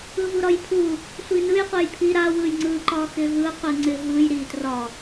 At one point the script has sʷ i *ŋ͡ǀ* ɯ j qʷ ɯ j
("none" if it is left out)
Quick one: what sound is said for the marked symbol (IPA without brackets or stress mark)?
n